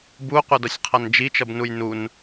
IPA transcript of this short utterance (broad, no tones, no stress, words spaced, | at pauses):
buqʷʌdʌsʲqʰʌn d͡ʒit͡ʃʌbnuj nun